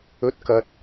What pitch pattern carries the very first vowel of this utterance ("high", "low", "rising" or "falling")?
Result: rising